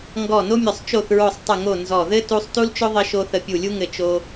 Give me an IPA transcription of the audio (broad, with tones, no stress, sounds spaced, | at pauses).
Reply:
ŋ ɡ ɔ˦˨ n o˥ mʲ ʊ˦˨ sˤ t͡ʃ o˦˨ θ ɹ o˦˨ sˤ tˤ ə˦˨ ŋ o˦˨ n z ɔ˦˨ ð ɘ˥ t u˥ sˤ t u˥ l t͡ʃ ʊ˥ ðˤ ɘ˥ ʃ o˥ θ ə˦˨ pʲ u˦˨ lʲ u˥ ŋ ɘ˦˨ t͡ʃ o˥